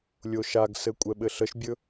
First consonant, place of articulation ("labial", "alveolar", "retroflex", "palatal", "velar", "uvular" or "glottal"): alveolar